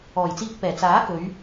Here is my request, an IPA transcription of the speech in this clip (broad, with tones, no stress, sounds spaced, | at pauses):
ɔː˨˩ j t͡s iː˧ k̚ p ɛː˨˩ t͡s aː˨˥ k ɵ˨˧ ɥ